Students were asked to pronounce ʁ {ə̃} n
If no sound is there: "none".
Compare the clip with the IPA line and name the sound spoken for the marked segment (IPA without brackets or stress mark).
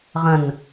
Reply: ə̃